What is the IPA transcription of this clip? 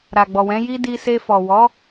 ɾ a˨ ɡ͡b ɔ˨ w ɛ̃˨˦ j i˦ d i˧ s e˧ f ɔ˨ w ɔ˨˦

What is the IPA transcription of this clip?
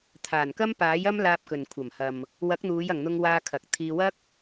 t̪ʰ aː˨˩ n k ɐ˥ m p aː˨˥ j ɐ˥ m l aː˧ p̚ k ɵ˨ n kʷʰ ɐ˨˩ m h ɐ˨ m | w ɐ˨˥ k̚ n̪ uː˨˧ j ɐ˨ ŋ n̪ ʊ˧ ŋ w aː˧ kʰ ɐ˨ k̚ t̪ʰ iː˧ w ɐ˥ k̚

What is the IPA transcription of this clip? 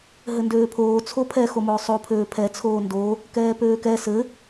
ɦ ɘ n d øː pʰ oː t͡sʰ o pʰ ɛ x o m ʊː sˤ o pʰ øː pʰ ɛ t͡sʰ oː n d o | k ɛː p øː k ɛ s ɘ

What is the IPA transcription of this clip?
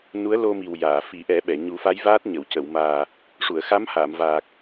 n u˧˥ ə̯ l o˧ m i˨˩ w j aː˨˩˨ f i˨˩˦ ʔ ɛ˨˩˦ ɓ ɛ˨˩˨ ɲ u˨˩˦ f a˧˥ j v aː˦˥ t̚ ɲ ə˨˩˨ w c ə˨˩˨ w m aː˨˩ | ʂ u˨˩˨ ə̯ x a˧˥ m h aː˨˩˨ m v aː˨˩ k̚

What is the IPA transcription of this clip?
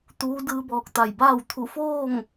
t̪ uː˧˥ d ɯː˧ b ɔː˧˩ k̚ t̪ a˧˩ j b aː˥˨ w t̪ʰ u˧˩ f oː˥˨ ŋ

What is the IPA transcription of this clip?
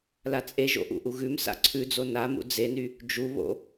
l a t͡sʼ e ʒ o̰ ʔ ṵ ʔ u ɣ ʉ m s a̰ ǀʰ ʉ d͡z o n a m ṵ d͡z e n y | d͡ʒ u β o̰

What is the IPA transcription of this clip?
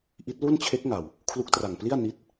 ʔ i˦˥ t̚ l u˥˩ n t͡ɕʰ e˦˥ k̚ ŋ a˨˩ w | kʰ l u˦˥ k̚ t r a˨˩ ŋ p l i˥˩ a̯ n i˦˥ t̚

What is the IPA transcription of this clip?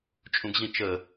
t͡ʃʼ ũ ɡ ʑ ĩ t͡ʃ ə

